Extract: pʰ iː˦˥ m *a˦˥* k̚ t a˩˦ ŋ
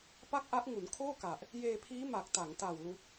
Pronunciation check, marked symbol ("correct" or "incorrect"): incorrect